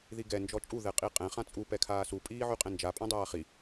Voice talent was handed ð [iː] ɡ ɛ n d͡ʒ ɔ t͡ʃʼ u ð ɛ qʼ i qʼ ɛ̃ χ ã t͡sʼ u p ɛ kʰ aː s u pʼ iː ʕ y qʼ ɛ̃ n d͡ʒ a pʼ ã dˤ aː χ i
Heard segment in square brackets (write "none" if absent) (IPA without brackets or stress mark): i